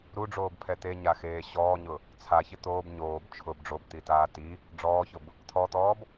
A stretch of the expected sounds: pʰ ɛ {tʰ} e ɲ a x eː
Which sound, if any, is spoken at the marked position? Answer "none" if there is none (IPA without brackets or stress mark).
t̪